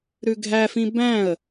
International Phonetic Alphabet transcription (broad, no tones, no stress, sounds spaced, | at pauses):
ɾ ʉ ɡʱ æ f ĩ b æ̃ ə̯